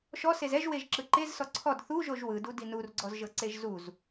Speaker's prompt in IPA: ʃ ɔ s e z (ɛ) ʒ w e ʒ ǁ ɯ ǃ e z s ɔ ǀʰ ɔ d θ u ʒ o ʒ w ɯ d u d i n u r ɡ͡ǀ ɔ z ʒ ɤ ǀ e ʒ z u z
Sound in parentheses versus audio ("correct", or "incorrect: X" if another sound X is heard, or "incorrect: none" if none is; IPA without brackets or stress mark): correct